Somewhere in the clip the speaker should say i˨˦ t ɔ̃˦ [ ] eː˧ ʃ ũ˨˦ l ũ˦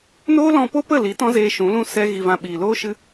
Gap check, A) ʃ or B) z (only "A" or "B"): B